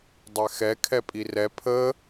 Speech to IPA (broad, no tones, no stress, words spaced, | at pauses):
dˤɛxɛ kʰɛpʼirɛ pʰə